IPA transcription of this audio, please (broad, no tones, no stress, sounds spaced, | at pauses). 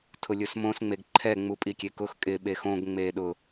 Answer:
tʰ ʊ lʲ ʊ s m õ s ŋ͡m e ɡ ǃʰ ɛ ŋ͡m u pʼ i kʲ e k ʊ x kʼ ɪ ɓ e x õ ɡ ŋ͡m eː ɗ ʊ